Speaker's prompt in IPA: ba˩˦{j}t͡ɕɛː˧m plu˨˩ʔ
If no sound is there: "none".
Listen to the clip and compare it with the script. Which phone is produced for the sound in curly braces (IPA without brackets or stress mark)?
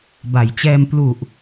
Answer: j